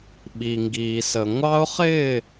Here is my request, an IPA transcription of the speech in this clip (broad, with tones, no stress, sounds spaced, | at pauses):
ɓ i˨ ŋ ɡ iː˨ s ə˨ ŋʷ ɑ˦ ʊ̯ χ ɪː˦˨